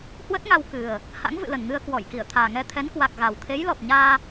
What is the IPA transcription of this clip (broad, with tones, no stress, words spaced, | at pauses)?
hwə˦˥t̚ŋa˧w kɨ˨˩ə̯ | ha̰˧˥ŋvɨ̰˧˨lə˨˩nŋɨ˧ə̯ kwɔ˧˩jki˧˩ə̯ t̪ʰaː˨˩ŋɛ˧t̪ʰɛ˨˦nkwa˨˩k̚ ɣa˨˩w t̪ʰe˨˦jlɔ˨˩p̚ɲaː˧